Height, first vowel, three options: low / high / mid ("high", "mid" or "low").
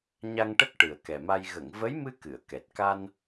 low